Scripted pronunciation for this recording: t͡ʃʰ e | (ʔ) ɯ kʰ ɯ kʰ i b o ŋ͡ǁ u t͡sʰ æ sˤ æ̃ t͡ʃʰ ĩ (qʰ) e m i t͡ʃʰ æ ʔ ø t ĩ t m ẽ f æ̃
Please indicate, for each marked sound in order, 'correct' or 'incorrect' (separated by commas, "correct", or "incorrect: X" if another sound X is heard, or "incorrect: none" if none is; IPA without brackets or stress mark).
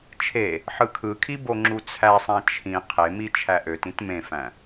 incorrect: ħ, correct